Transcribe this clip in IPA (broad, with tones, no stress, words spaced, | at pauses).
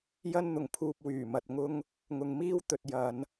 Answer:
jɐ˥nn̪ʊ˨˩ŋpʰuː˧p̚ wyː˨˩mɐ˨t̚ŋʊ˥ŋ | ŋʊ˨ŋmiː˥wt̪ɵ˨t̚ jɐ˨˧n